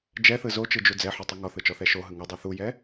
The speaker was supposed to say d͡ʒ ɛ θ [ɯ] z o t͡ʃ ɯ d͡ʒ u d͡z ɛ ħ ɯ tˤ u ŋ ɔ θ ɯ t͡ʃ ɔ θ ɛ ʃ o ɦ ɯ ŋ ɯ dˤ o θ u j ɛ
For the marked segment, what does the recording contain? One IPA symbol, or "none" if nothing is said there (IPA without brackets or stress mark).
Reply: ɯ